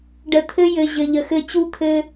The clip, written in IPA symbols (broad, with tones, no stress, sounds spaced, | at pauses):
ɖ ə˨ t̪ʰ ɘ˦ j ɘ˨ ʑ ɘ˨ ʎ ə˨ x ɘ˦ t͡ɕ u˦ t̪ʰ ɘ˦